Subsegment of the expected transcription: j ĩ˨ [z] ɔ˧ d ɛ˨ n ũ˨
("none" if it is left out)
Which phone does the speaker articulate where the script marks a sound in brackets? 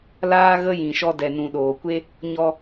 ʃ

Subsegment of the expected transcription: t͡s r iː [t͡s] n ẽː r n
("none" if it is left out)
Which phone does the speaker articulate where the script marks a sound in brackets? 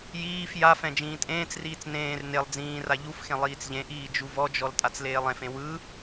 t͡s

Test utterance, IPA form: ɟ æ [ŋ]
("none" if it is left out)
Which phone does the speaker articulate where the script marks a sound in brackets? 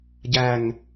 ŋ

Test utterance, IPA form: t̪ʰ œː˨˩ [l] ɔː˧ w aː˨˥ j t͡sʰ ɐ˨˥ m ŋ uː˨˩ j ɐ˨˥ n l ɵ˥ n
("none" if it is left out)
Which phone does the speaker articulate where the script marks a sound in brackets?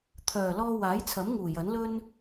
l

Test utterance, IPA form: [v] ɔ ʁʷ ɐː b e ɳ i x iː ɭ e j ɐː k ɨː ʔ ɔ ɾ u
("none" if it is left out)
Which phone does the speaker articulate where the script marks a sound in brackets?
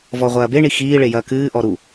v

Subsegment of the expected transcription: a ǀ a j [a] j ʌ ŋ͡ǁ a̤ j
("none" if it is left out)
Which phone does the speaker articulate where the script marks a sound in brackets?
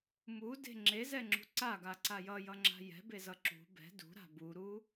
ʌ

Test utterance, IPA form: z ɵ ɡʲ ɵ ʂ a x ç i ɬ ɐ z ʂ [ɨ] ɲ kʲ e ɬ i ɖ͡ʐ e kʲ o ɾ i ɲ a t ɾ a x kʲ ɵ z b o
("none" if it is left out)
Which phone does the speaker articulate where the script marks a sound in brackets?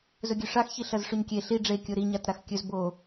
ʉ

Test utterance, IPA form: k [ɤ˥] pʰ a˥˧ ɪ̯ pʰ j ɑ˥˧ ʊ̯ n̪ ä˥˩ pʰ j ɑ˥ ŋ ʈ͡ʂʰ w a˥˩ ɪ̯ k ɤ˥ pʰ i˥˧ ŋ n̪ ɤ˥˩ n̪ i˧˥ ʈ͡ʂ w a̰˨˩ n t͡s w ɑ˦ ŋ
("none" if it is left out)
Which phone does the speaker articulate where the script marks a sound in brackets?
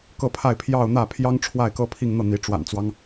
ɤ˥˧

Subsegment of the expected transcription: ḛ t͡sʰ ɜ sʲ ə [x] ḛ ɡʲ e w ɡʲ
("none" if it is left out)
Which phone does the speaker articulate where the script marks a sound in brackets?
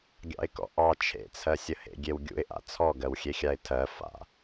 h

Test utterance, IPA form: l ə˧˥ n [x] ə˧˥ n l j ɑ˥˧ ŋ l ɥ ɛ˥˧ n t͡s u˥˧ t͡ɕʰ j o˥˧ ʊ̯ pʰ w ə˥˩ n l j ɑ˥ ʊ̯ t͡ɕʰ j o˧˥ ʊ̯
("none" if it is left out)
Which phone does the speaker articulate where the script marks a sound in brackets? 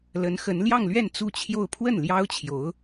x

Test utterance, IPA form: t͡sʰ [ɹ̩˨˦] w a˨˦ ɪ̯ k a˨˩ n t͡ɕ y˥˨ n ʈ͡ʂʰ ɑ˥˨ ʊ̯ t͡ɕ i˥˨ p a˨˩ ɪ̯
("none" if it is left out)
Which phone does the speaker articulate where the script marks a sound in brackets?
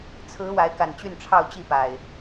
ɹ̩˨˦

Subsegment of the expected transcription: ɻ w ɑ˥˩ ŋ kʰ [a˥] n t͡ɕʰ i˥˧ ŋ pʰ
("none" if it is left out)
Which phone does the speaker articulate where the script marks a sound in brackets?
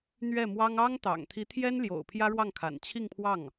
a̰˨˩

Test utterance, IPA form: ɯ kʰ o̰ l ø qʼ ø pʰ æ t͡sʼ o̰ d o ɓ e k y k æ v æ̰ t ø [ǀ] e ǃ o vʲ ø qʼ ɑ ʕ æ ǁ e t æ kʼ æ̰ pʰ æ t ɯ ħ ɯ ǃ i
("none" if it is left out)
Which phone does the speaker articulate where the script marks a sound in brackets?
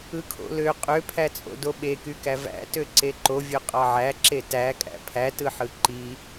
ǀ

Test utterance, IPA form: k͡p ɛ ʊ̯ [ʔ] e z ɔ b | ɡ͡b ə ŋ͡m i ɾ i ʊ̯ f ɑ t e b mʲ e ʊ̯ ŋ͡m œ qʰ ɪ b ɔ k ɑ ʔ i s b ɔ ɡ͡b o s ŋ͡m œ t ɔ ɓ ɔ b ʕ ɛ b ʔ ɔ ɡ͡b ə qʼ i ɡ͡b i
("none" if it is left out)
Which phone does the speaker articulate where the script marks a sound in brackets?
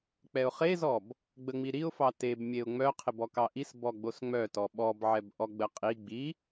χ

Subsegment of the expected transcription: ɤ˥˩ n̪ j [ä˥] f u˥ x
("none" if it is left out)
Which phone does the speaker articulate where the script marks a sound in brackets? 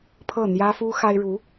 ä˥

